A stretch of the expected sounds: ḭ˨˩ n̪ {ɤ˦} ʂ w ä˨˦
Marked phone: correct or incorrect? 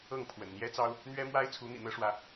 correct